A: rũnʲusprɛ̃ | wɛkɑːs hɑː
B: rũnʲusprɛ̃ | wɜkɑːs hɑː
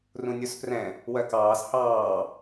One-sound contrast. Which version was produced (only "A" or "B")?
B